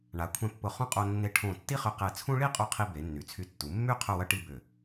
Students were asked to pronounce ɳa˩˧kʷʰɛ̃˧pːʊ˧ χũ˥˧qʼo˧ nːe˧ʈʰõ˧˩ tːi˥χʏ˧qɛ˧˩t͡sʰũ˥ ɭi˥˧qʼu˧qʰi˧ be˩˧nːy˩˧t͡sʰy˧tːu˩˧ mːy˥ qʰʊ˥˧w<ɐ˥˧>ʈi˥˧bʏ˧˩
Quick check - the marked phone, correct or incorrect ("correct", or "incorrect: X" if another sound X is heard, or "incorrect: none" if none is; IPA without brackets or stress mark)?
correct